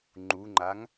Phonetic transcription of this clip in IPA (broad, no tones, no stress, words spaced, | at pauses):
ŋ͡ǃuŋ͡ǃaŋ